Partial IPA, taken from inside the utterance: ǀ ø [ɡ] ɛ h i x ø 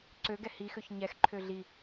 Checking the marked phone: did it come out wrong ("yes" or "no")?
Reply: no